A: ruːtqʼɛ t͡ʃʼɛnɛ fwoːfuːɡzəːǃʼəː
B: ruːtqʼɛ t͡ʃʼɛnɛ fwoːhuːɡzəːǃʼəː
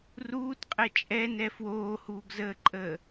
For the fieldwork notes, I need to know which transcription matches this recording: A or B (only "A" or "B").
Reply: B